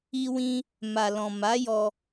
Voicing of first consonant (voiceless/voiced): voiced